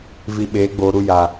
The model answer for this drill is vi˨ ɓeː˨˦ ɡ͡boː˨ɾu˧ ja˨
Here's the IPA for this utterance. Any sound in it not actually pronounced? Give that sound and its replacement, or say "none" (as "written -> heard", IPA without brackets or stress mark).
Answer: none